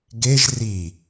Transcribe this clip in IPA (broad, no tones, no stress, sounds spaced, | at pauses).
ɡ e ʒ r i